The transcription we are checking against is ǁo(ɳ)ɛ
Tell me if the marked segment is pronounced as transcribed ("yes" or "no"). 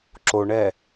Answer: yes